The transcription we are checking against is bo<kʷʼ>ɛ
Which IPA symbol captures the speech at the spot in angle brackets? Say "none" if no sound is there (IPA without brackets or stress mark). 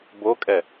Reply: kʼ